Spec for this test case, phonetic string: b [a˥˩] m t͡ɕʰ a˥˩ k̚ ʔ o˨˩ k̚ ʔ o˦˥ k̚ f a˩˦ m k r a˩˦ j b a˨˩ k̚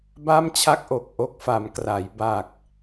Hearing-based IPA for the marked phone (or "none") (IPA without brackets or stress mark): a˥˩